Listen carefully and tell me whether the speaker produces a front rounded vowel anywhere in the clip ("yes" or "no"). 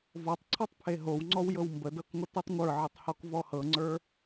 no